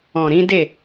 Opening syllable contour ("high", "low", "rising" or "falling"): low